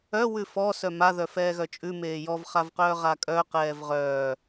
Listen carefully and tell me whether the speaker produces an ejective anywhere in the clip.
yes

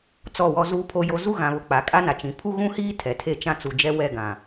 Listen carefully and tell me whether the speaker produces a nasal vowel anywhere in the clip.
yes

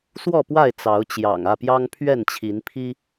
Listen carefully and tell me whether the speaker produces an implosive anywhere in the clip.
no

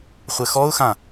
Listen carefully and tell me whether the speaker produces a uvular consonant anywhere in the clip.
yes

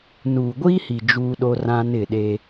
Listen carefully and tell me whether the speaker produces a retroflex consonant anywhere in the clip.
no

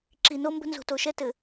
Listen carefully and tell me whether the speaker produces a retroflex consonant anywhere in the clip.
no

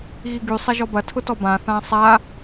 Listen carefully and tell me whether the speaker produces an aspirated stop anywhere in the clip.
yes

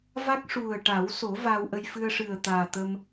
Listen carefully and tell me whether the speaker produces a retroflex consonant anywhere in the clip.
yes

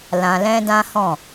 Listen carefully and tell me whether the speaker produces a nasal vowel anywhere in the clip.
yes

